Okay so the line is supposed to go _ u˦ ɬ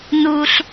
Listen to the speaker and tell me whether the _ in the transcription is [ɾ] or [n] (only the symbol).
n